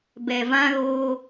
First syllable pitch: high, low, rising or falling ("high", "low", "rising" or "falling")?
low